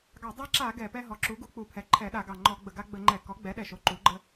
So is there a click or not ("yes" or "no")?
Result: yes